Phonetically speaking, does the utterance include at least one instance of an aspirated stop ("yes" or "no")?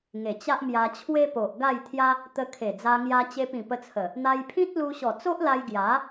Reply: yes